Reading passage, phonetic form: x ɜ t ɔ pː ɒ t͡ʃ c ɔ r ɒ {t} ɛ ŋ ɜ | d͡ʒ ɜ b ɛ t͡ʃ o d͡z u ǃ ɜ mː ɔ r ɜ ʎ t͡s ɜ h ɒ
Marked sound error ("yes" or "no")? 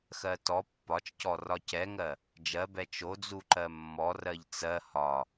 yes